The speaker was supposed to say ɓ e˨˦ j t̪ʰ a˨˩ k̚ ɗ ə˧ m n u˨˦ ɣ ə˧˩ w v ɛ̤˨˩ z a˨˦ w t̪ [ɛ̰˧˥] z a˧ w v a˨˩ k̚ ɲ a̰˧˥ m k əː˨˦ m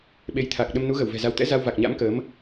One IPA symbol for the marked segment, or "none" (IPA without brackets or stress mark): ɛ̰˧˥